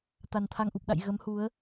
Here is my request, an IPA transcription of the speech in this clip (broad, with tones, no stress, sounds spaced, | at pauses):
t̪ a˨˩ n t̪ʰ a˧ ŋ ʔ u˨˩ p̚ ɗ a̰˧˨ j ɣ ə˨˦ m h u˨˦ ə̯